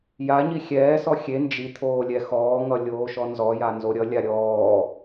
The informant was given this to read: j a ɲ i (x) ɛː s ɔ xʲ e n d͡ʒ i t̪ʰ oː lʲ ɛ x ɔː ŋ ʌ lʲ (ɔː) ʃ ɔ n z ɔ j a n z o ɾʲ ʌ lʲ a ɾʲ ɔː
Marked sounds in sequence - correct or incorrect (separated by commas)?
incorrect, incorrect